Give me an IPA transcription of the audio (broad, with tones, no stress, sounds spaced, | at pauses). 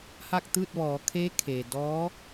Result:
h a˥˨ k̚ t̪ ɯː˥˨ t̚ ʋ ɔː˩˧ kʰ e˧˥ kʰ e˩ d ɔː˧˥